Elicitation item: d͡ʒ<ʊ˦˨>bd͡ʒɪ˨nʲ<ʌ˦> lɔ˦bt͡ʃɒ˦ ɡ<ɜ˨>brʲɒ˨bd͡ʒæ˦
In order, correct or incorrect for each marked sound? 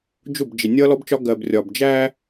correct, correct, correct

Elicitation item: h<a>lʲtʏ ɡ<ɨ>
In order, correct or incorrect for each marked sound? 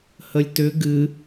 incorrect, correct

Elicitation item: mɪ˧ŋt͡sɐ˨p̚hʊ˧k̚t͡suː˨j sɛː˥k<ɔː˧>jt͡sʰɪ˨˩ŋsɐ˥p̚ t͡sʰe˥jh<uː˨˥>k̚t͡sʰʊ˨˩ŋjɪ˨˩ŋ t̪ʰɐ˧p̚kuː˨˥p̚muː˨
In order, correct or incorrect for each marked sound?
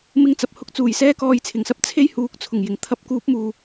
correct, correct

